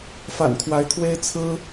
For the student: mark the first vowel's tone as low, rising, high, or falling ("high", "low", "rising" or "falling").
low